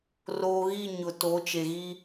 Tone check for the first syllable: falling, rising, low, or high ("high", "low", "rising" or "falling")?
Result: low